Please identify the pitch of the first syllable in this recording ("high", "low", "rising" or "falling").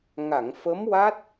low